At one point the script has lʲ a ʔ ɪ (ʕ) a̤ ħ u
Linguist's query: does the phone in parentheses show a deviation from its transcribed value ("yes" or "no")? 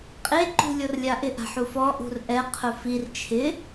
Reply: yes